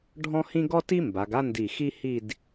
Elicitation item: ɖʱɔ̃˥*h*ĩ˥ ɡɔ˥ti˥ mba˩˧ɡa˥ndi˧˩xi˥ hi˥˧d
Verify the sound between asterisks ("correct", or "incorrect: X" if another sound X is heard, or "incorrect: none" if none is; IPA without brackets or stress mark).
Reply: correct